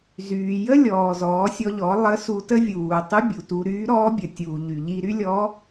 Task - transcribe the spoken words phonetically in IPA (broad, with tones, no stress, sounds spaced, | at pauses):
z yː˩ j ə˥ lʲ ɔː˩ z ɔː˩˧ sʲ ɔ˧ ʎ ɔ˩˧ lˠ ə˧˥ s u˧ t ə˥ vʲ uː˩ tˤ y˧˥ bʲ u˩ t u˧ ɾ yː˧˥ ɾ ɔː˧˥ bʲ ə˩ tʲ uː˩ ʎ y˩ ʎ i˧ ɾ y˥ lʲ ɔ˧˥